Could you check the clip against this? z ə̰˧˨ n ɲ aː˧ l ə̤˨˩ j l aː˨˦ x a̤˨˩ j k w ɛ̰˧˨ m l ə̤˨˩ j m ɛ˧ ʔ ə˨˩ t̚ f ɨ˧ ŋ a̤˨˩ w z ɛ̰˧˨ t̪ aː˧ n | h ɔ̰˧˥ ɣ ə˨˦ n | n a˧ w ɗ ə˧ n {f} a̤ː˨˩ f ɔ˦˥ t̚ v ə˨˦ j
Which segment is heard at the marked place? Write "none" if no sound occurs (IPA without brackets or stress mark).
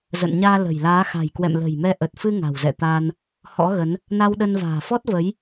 v